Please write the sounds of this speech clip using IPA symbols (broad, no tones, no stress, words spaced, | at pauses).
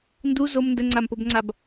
ndu zom ndəŋ͡ǀampobŋ͡ǀab